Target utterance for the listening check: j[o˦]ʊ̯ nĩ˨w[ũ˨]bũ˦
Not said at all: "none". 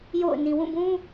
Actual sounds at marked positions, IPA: o̰˦˨, ũ˦˨

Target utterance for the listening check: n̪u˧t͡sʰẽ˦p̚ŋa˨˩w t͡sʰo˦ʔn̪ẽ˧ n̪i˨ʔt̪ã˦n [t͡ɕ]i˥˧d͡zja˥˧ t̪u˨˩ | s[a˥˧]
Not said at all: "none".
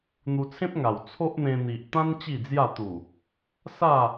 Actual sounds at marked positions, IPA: t͡ɕ, a˥˧

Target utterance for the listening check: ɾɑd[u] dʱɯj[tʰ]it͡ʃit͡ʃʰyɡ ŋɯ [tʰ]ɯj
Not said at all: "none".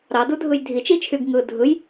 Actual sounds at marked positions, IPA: u, dʱ, dʱ

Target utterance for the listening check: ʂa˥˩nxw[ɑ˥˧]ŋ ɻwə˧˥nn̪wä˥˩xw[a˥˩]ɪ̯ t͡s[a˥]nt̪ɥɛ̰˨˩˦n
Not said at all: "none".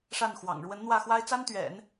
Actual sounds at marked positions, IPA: ɑ̰˨˩, a˥, a˥

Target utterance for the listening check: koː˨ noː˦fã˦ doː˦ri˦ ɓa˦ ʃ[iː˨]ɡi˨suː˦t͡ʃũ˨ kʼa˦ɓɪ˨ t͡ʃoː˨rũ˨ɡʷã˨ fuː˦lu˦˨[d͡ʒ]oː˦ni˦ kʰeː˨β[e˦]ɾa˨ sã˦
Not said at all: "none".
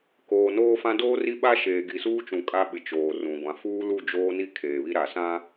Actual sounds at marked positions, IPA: eː˨, d͡ʒ, i˦

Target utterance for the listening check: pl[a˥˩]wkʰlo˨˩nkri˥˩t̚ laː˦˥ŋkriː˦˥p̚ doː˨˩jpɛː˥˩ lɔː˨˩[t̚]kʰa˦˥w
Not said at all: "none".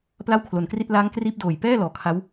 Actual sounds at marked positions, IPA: a˥˩, none

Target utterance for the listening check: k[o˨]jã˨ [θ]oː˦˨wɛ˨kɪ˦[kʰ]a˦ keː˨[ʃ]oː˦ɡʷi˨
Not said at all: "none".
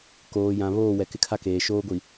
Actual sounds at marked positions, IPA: oː˨, β, kʰ, ʃ

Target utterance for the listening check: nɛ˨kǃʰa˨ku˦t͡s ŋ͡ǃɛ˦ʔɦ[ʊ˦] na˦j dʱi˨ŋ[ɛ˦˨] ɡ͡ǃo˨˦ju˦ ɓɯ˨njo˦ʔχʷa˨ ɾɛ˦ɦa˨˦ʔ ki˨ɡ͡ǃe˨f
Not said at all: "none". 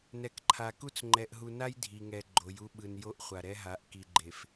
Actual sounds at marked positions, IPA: u˦, ɛ˨

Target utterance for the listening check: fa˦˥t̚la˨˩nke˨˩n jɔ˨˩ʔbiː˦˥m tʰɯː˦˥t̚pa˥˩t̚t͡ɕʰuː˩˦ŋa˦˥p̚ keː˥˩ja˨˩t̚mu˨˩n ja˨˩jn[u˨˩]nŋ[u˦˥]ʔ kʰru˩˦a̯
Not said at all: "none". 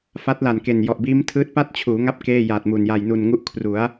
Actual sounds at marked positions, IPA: u˨˩, u˦˥

